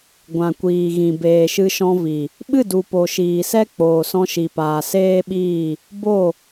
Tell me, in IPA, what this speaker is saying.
ɡʷ ã˨ kʷ iː˨ ɣ ĩ˨ b eː˨ ʃ ɨ˧ ʃ ɔ̃˧ v i˨ | ɓ ɨ˦˨ d u˨ p o˨ ʃ iː˨ s ɛ˦ k͡p oː˨ s ɔ̃˧ ʃ i˨ p aː˨ s eː˦ ɓ iː˦˨ | b o˦˨

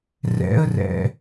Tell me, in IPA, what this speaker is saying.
r ɛ̰ ə̯ r ɛ̰

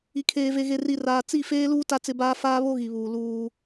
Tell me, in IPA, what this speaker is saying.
i˨ kʰ eː˨ v e˨ ɣ e˨ r i˨ r aː˨ t͡s i˦˨ f eː˦ l uː˦ t a˦ t͡s ɪ˦ b aː˦ f aː˦ β o˦ ɣ i˨ β uː˨ l uː˦

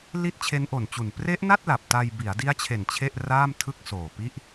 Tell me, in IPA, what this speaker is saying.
l i˦˥ t̚ t͡ɕʰ e˦˥ n ʔ o˨˩ n t͡ɕ u˨˩ n p r e˦˥ ʔ n a˥˩ t̚ l a˨˩ p̚ t a˧ j b i˩˦ a̯ d i˦˥ a̯ t͡ɕʰ e˨˩ n t͡ɕʰ e˥˩ ʔ r aː˥˩ m tʰ ɯ˥˩ k̚ s oː˨˩ p i˥˩ ʔ

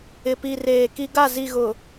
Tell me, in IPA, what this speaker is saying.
ɪ˨ p i˨ r eː˨ k i˦ ɡ a˦˨ z i˨ ɣ ʊ˨

